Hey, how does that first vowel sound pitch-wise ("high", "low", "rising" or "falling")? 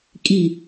falling